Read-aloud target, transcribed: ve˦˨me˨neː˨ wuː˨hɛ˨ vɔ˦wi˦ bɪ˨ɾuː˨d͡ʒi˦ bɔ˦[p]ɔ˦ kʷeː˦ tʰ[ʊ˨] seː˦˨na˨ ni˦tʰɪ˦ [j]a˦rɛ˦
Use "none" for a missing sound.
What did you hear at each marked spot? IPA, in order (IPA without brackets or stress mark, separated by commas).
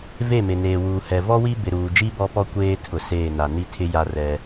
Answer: p, ʊ˨, j